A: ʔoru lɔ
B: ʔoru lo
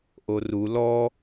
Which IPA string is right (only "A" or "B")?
A